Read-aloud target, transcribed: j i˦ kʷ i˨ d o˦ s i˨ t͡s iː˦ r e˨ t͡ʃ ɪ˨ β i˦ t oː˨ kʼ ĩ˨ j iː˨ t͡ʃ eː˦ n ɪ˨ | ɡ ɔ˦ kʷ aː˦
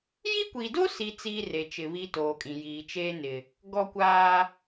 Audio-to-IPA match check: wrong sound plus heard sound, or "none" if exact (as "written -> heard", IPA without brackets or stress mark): none